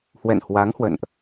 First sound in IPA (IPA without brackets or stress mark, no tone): h